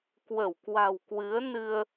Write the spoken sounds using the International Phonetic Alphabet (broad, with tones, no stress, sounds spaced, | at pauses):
k w ə˧˩ w k w a̤˨˩ w k w ɨ˨˦ ə̯ n ɨ˧ ə̯